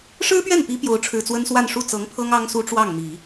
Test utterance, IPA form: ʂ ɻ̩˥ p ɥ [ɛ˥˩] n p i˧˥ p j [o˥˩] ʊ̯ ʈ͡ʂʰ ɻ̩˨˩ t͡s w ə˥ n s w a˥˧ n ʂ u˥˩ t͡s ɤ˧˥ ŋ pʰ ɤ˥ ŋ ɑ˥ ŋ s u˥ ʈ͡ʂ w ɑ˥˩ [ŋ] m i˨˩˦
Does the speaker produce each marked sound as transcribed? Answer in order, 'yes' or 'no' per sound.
yes, no, yes

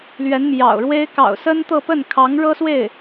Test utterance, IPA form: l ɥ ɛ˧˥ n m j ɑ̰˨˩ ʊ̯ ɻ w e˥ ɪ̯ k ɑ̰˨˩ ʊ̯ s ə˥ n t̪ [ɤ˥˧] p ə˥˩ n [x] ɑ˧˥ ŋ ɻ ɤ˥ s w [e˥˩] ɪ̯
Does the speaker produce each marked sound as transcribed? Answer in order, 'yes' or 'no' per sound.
yes, no, yes

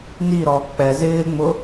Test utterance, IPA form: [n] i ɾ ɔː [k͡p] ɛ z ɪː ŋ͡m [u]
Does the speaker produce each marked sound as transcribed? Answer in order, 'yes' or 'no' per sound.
yes, yes, no

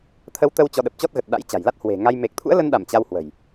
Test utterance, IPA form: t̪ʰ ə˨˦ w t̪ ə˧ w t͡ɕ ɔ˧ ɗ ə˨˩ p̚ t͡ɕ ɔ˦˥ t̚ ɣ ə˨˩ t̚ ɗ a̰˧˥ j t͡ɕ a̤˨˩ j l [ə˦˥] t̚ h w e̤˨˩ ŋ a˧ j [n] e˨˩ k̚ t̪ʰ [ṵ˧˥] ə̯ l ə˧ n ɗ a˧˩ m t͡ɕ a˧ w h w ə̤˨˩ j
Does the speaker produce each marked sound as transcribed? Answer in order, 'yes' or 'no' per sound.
no, no, yes

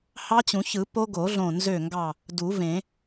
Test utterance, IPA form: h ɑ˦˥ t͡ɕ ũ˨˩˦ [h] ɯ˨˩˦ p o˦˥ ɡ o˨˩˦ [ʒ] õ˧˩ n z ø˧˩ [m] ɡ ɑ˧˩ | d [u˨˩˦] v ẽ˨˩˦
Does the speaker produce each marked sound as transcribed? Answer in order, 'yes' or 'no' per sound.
no, no, no, yes

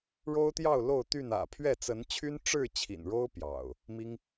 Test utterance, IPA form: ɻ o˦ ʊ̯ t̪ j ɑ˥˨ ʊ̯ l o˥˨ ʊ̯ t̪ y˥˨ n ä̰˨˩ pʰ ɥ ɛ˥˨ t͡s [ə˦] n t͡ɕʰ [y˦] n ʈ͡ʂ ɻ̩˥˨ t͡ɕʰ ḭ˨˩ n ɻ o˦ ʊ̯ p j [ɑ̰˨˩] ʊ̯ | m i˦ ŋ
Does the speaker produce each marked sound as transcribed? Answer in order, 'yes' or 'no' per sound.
no, yes, yes

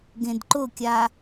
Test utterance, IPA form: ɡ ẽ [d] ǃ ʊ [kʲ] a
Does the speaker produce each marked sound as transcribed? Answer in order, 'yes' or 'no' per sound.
yes, yes

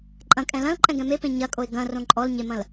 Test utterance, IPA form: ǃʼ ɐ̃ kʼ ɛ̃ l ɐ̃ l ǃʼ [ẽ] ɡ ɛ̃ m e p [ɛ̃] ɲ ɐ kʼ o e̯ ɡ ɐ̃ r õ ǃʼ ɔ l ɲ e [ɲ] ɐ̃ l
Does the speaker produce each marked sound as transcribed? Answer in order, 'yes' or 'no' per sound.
no, no, no

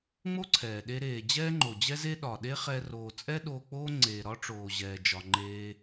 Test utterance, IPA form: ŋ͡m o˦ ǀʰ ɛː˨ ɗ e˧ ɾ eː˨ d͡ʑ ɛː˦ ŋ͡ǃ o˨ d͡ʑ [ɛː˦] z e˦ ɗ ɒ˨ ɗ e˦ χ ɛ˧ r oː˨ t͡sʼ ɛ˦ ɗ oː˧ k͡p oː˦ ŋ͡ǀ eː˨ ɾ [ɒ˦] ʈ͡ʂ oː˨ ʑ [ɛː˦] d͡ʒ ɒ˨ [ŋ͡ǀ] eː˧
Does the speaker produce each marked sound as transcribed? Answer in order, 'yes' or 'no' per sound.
no, yes, no, no

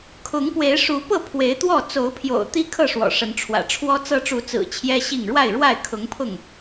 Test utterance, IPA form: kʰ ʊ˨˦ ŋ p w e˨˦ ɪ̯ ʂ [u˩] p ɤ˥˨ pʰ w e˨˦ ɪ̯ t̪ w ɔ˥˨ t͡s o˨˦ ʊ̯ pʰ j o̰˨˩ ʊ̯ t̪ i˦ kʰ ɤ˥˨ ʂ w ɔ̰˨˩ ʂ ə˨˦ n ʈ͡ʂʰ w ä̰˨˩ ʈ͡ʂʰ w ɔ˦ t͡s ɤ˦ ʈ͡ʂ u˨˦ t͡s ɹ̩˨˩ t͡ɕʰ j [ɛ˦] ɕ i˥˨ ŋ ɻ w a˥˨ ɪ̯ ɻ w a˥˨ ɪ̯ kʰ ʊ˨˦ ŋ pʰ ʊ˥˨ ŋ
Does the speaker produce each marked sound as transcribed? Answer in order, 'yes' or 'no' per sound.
no, yes

